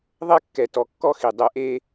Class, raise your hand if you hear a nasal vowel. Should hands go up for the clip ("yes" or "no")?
no